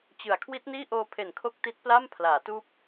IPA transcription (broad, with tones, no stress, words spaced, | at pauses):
t͡ɕɯ˨˩a̯ kʰwi˦˥t̚niː˥˩ʔoː˧pʰe˨˩n kʰo˦˥k̚ti˦˥t̚pla˥˩m pʰlaː˩˦tuː˦˥p̚